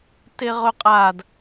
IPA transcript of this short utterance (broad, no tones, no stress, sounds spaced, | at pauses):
t e ʁ ɵ qʼ a d